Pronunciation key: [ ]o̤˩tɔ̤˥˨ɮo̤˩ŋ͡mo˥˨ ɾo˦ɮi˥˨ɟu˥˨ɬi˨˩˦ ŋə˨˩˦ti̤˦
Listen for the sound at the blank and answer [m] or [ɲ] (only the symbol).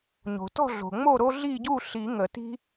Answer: ɲ